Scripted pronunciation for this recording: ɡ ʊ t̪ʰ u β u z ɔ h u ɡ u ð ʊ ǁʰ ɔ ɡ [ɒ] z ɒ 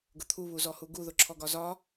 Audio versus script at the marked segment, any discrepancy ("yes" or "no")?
no